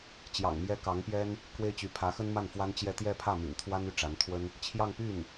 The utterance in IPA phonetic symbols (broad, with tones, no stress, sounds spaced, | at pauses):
t͡ɕ j ɑ̰˨˩ ŋ m j ɛ˥ k ɑ˧˥ ŋ p j ɛ˥ n | k w e˥ ɪ̯ t͡ɕ y˧˥ pʰ ä˧˥ x ə˥ n m a˥˩ n f w a˥ n t͡ɕ j ɛ˥˧ t̪ j ɛ˥˧ pʰ ä˥˩ m y̰˨˩ n t̪ʰ w a˥ n y˥˩ ʈ͡ʂ a˧˥ n t̪ʰ w ə˥ n | t͡ɕʰ j ɑ˥˧ ŋ p y˥˩ n